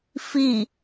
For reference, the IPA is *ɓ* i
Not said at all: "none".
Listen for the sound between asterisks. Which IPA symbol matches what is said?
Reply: f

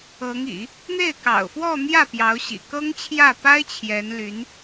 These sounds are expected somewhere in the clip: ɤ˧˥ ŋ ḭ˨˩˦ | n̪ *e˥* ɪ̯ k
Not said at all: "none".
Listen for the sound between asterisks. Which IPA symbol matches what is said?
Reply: e˥˩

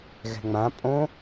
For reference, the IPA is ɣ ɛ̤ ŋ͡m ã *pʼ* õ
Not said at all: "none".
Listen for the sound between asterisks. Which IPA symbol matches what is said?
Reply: pʼ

